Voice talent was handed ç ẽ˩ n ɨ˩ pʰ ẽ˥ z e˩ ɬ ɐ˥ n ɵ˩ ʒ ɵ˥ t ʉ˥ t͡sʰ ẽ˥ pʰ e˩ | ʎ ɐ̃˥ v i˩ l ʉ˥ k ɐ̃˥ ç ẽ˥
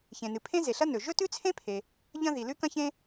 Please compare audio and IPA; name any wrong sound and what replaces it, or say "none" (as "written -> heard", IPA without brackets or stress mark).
v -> ð